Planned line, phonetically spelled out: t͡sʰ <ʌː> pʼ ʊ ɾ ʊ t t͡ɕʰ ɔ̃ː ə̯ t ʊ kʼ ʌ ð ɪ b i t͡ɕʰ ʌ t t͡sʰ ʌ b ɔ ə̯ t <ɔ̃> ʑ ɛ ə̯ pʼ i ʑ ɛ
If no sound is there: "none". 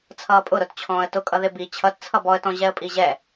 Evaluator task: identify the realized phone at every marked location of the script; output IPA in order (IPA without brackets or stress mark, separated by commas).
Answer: ʌː, ɔ̃